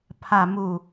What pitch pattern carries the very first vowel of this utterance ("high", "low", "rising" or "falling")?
low